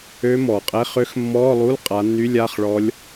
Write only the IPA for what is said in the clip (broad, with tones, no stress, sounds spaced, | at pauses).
ø˦˥ m ɔː˩ qʼ ɛ˧˥˧ χ ø˦˥ x mː ɔː˧˥˧ lˠ u˧˥˧ l qʼ a˨˦ nː y˧˥˧ lʲ a˧˥˧ χ ɭ ɔ˦˥ lʲ